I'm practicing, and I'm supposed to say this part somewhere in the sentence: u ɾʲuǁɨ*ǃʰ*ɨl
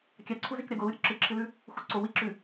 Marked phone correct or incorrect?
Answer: incorrect